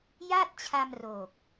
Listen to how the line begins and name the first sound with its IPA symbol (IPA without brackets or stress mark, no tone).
j